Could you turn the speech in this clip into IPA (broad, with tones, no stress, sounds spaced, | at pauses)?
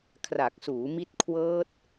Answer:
kʰ r a˨˩ k̚ s uː˩˦ m i˦˥ t̚ kʰ w ɤː˦˥ t̚